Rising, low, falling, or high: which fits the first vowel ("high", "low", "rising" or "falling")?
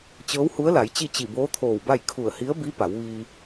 rising